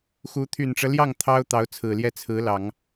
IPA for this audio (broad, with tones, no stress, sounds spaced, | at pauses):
x u˧˥ t̪ʰ y˨˩ n ʈ͡ʂ ɤ˦ l j ɑ˥˩ ŋ t̪ʰ ɑ˥ ʊ̯ t̪ ɑ˧˥ ʊ̯ t͡sʰ ɹ̩˨˩ l j ɛ˥˩ t͡sʰ ɹ̩˧˥ l ɑ˨˩˦ ŋ